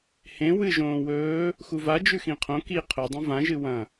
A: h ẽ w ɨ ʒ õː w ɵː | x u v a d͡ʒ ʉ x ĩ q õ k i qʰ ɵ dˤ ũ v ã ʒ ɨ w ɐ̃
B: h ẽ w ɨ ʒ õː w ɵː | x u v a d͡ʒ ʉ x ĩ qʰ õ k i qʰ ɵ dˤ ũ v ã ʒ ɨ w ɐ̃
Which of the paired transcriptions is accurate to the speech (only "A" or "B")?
B